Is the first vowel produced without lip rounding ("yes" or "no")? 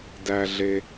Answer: yes